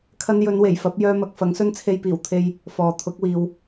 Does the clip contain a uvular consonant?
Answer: no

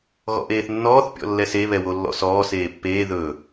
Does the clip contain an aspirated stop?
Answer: no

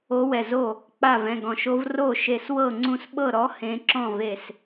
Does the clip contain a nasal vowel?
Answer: yes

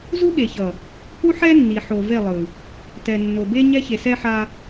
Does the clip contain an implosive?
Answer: yes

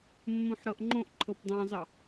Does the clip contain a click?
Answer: yes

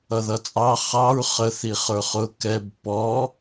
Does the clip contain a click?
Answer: no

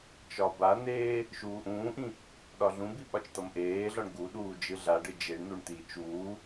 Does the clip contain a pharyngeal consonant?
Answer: no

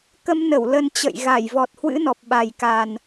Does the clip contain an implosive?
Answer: yes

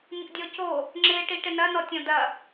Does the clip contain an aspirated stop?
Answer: no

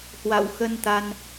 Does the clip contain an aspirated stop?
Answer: no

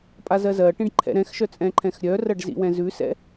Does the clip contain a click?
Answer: yes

